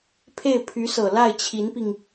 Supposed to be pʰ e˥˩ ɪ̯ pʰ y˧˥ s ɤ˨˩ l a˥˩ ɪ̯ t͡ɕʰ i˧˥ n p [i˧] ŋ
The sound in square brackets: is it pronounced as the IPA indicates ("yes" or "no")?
yes